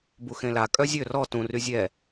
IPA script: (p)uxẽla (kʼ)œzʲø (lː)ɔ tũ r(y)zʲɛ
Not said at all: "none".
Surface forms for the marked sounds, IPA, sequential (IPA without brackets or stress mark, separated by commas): b, kʼ, r, y